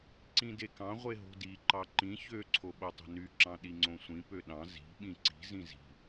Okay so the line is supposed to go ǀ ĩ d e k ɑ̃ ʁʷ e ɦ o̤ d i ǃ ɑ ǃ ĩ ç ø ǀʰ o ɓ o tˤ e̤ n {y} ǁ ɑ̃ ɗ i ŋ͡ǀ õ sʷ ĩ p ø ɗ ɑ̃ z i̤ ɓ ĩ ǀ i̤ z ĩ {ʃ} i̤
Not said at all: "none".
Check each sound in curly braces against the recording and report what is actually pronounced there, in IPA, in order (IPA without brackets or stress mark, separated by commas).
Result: y, z